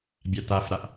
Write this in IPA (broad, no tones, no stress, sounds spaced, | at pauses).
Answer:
bʲ a t a f ɾ a ʔ